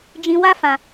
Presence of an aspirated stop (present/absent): absent